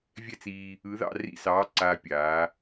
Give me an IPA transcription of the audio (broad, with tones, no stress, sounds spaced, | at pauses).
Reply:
vʲ ɛ˥˧ t͡s iː˧ | ɯ˨˥ ð ɑ̰˥˧ r ḭ˥˧ s ɑː˨˥ ǀ aː˧ pʲ aː˩˧